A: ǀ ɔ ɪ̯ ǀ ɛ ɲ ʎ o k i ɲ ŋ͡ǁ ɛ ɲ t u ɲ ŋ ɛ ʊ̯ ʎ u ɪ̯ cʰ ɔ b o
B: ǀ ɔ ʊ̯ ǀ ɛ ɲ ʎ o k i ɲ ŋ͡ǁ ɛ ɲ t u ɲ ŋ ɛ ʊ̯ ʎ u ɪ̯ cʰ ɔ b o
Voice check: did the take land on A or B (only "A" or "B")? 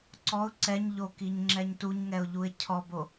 B